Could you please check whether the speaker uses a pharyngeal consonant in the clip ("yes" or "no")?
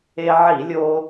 yes